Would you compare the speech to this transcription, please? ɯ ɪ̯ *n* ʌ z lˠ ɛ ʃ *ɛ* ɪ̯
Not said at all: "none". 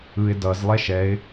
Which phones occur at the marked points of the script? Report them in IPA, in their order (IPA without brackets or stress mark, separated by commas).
d, ɛ